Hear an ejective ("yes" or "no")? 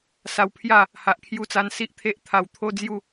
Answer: no